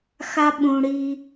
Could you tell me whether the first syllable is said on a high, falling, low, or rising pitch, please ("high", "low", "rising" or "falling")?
high